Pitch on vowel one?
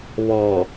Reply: low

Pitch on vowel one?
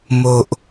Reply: low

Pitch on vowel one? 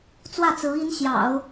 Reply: falling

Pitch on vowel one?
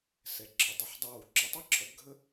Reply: low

